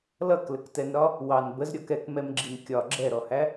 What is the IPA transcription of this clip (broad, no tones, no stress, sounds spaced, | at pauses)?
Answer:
l ʌ k l ə k t ɛ n ɾ ɒ | w ɑ n b ə z ɾʲ ɔ k ɛ k m ɛ m ɡ͡ǁ i n kʲ ɒ ɡ͡ǁ ɛ ɾ ɔ h æ